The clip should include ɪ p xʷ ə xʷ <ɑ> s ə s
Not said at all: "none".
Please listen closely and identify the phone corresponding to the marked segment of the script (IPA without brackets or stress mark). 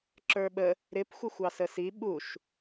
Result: ɑ